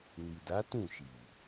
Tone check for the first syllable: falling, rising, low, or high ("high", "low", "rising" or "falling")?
low